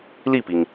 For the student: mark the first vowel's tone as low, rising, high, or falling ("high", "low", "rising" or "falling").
falling